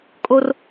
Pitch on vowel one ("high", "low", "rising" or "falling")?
high